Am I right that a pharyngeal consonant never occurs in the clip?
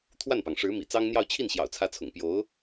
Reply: yes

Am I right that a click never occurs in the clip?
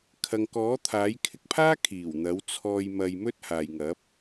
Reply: yes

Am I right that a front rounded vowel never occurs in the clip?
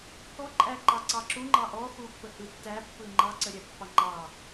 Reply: yes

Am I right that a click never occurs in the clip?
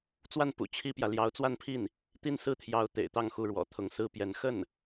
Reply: yes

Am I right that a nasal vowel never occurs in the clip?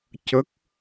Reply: yes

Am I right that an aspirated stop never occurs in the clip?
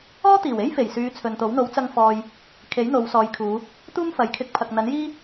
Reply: no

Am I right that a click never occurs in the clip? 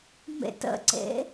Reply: no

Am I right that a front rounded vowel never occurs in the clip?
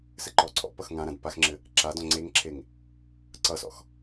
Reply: yes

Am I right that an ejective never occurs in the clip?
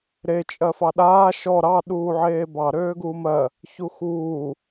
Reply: no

